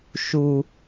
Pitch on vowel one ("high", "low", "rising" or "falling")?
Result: low